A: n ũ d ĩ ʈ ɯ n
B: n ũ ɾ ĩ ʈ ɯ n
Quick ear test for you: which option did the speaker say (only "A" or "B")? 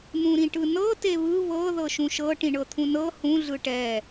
B